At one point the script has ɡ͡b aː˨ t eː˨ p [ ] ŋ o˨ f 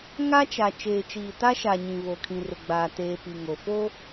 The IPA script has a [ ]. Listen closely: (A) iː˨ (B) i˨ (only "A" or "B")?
B